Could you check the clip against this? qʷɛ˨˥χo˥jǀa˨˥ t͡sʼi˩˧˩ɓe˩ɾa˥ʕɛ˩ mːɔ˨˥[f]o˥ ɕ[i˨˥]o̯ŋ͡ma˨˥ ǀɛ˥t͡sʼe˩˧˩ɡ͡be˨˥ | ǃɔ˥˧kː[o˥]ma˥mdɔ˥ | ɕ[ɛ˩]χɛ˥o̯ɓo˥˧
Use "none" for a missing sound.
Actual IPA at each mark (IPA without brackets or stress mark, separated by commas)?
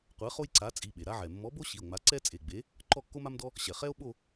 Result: b, i˩˧˩, o˥, ɛ˩